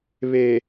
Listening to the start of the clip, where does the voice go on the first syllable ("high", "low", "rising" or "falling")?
low